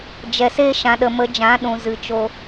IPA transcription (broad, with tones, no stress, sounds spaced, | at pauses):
d͡ʒ ɛ˨ s e˦ ʃ ã˨ ɗ ə˨ m ə˨˦ d͡ʒ ã˨˦ ɗ ũ˨ z ɨ˨ t͡ʃ o˧